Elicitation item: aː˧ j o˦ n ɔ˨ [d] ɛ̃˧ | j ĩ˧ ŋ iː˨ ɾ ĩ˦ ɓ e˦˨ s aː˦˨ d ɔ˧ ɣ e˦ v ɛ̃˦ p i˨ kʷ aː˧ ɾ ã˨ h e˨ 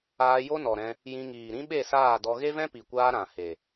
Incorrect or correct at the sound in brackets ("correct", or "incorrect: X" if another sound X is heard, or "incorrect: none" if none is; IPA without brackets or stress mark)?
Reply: incorrect: ɾ